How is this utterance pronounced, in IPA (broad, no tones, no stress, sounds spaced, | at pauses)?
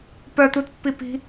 p œ t̪ u t pː i p i̤